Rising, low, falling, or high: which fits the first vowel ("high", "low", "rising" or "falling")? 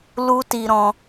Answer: high